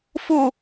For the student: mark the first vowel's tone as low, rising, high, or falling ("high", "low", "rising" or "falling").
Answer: falling